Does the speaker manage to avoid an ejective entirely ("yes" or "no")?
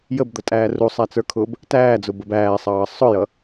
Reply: no